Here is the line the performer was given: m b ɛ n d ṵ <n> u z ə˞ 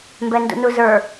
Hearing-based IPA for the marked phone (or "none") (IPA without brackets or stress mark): n